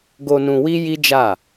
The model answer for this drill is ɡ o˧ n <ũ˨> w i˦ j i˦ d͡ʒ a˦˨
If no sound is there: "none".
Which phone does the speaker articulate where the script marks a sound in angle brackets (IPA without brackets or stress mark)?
ũ˧